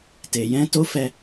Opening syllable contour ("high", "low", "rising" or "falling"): low